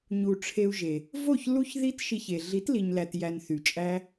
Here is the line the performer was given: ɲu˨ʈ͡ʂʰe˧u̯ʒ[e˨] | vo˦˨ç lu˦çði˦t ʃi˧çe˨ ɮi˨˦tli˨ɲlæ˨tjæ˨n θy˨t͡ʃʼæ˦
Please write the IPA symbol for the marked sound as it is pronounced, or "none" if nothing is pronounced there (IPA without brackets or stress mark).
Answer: e˨